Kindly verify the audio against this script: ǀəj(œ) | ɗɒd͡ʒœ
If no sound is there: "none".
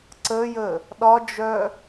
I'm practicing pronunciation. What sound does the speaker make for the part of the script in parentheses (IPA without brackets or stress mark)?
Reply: ə